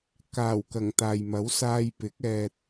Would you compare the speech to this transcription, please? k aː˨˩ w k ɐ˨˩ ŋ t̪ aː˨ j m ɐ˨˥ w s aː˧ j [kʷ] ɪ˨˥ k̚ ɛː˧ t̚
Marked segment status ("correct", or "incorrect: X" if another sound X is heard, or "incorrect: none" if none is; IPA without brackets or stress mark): incorrect: p